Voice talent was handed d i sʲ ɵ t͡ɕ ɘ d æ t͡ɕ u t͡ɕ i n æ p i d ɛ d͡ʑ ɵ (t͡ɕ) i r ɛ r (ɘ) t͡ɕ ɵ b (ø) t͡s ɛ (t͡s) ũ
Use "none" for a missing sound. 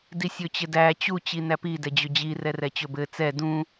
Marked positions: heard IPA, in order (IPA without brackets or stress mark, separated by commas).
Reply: d͡ʑ, ɛ, ɘ, d